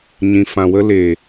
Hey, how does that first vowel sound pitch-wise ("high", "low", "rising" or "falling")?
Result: low